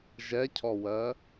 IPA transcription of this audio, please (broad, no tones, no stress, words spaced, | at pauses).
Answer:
ʒɛcʰɔwɜ